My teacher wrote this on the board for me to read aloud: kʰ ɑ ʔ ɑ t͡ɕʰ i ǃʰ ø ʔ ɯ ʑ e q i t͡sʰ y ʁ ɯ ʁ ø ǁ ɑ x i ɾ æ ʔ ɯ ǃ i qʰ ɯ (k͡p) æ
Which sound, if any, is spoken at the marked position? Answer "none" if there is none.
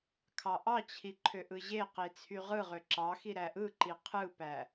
p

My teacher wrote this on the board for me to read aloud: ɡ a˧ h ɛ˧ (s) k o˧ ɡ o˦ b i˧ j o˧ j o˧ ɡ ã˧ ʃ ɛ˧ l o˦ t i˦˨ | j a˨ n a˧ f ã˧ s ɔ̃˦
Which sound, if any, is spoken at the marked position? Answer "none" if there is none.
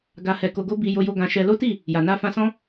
none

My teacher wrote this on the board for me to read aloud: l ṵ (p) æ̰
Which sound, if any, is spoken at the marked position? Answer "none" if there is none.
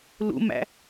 m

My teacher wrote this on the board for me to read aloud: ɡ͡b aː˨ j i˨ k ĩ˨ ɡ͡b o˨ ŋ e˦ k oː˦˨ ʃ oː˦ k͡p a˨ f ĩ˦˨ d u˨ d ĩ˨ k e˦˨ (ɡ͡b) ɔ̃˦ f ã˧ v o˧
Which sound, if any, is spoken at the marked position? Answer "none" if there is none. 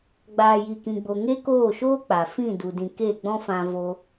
ɡ͡b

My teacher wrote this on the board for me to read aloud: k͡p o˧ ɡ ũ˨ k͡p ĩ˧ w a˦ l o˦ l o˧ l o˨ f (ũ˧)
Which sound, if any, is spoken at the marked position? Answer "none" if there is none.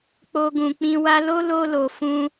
ũ˧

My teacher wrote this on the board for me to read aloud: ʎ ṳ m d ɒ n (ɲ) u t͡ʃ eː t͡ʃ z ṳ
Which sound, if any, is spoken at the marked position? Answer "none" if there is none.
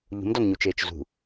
ɲ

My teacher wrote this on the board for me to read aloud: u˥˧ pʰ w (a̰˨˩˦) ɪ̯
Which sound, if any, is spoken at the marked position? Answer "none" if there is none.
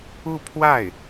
a˥˩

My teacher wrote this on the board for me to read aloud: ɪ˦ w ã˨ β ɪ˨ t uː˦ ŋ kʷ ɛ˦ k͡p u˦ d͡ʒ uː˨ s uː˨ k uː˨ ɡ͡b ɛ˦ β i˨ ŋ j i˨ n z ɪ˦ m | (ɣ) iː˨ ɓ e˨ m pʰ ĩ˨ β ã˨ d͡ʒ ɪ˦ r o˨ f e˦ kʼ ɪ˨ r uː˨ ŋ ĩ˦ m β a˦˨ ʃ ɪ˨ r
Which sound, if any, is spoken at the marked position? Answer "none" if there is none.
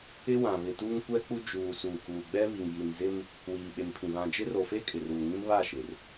w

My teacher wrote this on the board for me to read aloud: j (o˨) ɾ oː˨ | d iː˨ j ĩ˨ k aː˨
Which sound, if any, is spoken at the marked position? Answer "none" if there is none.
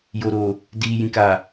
o˨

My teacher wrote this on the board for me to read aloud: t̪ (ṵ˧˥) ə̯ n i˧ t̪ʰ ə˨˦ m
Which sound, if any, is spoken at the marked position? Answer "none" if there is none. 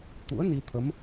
ṵ˧˥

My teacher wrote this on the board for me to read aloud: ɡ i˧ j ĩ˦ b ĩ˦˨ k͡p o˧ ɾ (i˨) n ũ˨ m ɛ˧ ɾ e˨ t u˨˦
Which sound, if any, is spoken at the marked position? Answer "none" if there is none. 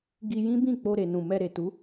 e˨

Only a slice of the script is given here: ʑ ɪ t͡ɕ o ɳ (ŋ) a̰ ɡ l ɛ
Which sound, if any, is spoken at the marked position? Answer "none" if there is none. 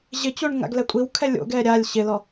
ŋ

